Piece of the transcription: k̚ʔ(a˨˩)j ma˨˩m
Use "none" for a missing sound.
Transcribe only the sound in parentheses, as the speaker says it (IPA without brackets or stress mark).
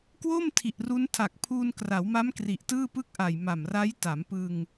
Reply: a˨˩